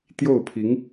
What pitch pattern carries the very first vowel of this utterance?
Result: falling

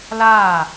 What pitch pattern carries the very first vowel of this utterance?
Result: falling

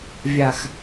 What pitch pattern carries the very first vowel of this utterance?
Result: low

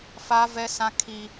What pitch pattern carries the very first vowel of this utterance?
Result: high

